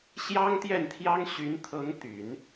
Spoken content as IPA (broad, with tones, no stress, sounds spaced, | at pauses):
ɕ j ɑ˥ ŋ t̪ j ɛ˥˩ n t̪ʰ j ɑ˥ ŋ ɕ y˧˥ n t̪ʰ ɤ˧˥ ŋ t̪ y˨˩˦ n